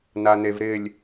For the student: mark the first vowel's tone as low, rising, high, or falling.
low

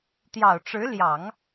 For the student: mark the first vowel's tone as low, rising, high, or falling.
low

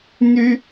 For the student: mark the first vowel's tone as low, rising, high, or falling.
high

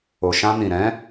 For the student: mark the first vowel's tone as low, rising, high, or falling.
low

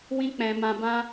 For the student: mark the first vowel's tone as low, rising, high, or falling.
high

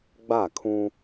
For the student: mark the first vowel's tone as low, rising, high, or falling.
falling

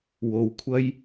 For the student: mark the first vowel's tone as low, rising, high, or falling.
low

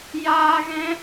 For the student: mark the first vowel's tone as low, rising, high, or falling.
high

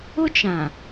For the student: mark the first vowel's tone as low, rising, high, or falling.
high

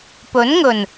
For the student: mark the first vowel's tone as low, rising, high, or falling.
rising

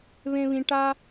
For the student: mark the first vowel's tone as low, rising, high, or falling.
high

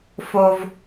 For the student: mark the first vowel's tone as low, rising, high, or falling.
high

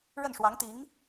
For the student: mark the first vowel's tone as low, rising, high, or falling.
falling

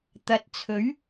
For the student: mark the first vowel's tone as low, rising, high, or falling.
rising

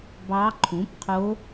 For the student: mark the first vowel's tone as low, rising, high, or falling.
rising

